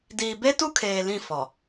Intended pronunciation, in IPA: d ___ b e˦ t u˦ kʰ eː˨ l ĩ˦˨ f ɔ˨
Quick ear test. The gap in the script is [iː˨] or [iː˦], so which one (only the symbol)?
iː˨